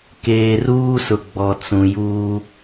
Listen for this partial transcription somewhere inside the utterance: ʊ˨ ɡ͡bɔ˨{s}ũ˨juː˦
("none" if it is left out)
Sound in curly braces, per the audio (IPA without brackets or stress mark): t͡s